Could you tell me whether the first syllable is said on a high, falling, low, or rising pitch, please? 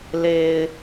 low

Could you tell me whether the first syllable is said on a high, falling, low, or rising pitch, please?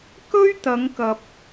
high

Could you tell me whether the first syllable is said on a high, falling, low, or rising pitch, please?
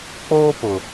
high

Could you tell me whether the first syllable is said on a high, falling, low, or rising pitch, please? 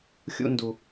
high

